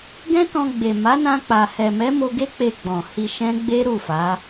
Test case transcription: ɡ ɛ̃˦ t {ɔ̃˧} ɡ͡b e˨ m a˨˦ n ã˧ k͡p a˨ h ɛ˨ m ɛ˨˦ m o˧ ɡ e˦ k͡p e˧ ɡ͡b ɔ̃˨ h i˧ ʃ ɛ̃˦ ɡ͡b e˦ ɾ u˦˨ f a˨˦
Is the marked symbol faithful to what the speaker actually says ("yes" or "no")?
yes